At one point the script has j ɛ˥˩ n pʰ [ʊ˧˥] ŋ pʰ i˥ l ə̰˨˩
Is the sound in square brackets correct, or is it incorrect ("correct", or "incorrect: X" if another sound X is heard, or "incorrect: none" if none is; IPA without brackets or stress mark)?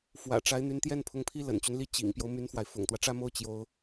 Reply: correct